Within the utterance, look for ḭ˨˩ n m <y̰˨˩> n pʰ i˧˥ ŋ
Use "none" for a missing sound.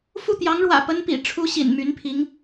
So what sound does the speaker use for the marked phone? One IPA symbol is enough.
y˧˥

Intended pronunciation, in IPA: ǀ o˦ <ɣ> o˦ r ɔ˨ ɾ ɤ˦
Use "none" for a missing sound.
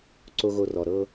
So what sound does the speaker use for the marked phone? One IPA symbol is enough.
ɣ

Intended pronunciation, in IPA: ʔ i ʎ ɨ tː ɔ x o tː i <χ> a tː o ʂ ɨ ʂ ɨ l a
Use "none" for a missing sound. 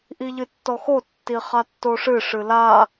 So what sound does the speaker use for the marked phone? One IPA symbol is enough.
χ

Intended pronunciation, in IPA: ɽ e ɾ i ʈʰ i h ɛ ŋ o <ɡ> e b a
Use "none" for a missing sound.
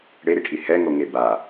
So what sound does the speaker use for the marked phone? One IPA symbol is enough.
ŋ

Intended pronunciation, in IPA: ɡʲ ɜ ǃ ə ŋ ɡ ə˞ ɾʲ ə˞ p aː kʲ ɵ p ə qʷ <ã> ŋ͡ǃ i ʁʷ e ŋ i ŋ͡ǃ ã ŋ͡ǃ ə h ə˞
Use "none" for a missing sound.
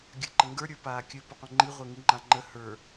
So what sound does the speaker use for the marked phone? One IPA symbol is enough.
ə̃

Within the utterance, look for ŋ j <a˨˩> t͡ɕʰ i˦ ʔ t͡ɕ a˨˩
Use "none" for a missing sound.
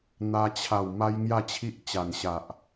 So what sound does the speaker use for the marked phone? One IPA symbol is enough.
a˥˧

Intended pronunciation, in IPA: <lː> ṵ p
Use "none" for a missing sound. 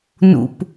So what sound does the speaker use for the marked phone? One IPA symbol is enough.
n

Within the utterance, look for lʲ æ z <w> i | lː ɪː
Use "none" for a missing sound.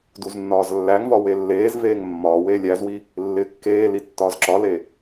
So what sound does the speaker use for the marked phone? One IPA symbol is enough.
w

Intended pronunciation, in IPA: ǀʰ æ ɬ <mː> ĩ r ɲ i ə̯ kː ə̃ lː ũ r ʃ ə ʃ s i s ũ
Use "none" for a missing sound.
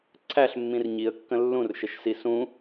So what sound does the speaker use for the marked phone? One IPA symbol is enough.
mː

